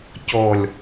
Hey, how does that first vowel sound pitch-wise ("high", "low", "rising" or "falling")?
low